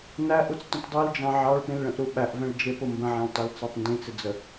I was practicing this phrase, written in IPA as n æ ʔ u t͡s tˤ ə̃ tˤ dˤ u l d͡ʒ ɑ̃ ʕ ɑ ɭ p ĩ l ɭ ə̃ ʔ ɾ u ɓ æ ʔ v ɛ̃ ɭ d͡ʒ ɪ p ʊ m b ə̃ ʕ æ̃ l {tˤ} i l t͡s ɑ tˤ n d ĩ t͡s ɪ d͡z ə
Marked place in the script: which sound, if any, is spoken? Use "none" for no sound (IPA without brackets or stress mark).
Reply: tˤ